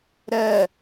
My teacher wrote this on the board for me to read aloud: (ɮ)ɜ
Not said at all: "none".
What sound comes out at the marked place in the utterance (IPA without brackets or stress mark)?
ɾ